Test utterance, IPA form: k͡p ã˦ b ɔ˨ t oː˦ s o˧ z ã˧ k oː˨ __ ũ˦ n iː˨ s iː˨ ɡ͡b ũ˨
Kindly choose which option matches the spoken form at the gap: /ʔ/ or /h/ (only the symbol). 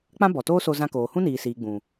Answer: h